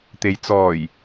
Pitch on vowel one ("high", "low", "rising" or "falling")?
low